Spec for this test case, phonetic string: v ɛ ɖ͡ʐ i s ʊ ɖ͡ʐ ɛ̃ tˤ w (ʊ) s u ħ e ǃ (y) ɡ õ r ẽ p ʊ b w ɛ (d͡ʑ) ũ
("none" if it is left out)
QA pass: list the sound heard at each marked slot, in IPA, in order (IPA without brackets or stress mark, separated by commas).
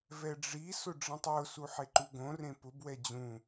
ʊ, u, d͡ʑ